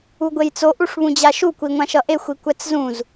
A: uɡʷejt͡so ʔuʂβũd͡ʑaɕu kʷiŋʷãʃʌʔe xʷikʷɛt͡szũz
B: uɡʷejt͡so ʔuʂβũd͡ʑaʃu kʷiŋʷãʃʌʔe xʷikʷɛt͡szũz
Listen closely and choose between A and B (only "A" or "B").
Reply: B